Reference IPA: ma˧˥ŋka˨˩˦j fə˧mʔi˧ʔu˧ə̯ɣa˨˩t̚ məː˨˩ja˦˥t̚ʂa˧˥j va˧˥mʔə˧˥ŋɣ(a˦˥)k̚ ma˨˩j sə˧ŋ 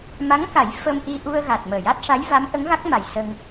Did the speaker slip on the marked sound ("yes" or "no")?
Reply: no